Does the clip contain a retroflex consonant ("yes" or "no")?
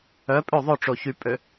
yes